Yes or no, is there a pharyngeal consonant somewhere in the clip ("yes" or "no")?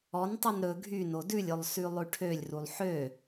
yes